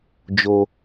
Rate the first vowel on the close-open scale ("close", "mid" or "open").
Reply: mid